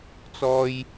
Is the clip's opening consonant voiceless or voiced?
voiceless